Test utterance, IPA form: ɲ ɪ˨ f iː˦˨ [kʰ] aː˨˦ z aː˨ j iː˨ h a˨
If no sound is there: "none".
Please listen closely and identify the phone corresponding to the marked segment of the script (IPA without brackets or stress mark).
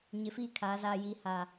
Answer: kʰ